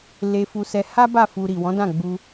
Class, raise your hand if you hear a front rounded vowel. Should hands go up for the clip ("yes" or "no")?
no